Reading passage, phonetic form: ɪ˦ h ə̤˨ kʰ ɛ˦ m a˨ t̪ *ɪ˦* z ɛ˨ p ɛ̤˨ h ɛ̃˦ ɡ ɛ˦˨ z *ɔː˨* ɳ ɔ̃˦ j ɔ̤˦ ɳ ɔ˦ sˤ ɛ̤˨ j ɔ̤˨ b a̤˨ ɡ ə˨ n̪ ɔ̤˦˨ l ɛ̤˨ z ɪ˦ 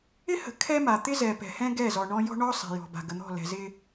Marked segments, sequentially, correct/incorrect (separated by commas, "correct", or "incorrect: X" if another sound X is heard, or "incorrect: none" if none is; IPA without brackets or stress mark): correct, incorrect: ɔ˨